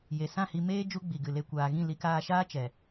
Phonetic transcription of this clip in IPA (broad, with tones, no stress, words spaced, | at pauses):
je˨sã˦˨hi˧meː˦ d͡ʒu˦ɡ͡bi˨ɡɨ˨le˧ kʷaː˨ɣĩ˦˨ li˧kaː˧ʃaː˦ t͡ʃɛ˨